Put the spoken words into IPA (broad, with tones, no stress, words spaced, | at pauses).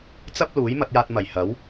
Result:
t͡sɐ˥p̚luː˨˥j mɐ˧t̚jaː˧t̚ mɐ˨˩j hɐ˨˥w